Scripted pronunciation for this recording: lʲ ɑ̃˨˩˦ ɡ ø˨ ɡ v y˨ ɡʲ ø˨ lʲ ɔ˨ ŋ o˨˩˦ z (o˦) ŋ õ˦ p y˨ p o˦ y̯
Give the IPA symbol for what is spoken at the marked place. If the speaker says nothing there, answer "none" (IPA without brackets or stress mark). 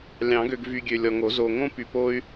o˨